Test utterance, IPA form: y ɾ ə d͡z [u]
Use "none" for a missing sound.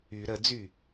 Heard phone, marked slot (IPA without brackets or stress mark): y